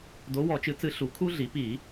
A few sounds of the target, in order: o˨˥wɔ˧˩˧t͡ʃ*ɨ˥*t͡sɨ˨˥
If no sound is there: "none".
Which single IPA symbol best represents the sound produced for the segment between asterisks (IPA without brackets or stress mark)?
ɨ˨˥